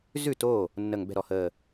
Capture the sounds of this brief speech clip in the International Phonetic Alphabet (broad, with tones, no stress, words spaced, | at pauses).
zʉ˥˩to˥˩ | nːə˧˩ŋ bɛ̤˥˩ɾɔ˧˩həː˧˩